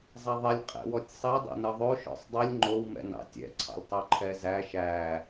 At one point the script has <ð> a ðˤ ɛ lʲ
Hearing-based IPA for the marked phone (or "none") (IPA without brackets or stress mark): zˤ